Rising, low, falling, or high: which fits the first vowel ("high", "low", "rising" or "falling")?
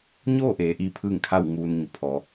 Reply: falling